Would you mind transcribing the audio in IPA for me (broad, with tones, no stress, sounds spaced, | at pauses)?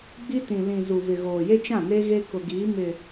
ɡ͡b i˦ t ĩ˨ l ĩ˨ z u˨ v ɪ˨ ɣ oː˨ j e˦ t͡ʃ ã˦˨ n e˦ ɣ e˦ k ʊ˨ ɡ iː˨˦ m ɪ˨